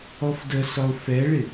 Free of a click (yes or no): yes